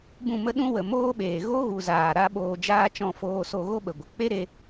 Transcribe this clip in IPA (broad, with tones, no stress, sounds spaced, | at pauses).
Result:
b ũ˦˨ m ə˦ ɗ ũ˦ w ə˨ m oː˦ ɓ eː˨ ɣ o˦ ɣ u˨ z aː˨ ɾ a˦ ɓ oː˧ d͡ʒ aː˦ t͡ʃ ɔ̃˧ f oː˧ s o˧ ɣ o˦ ɓ ə˨ ɡʷ ə˨ k͡p e˦ ɾ e˧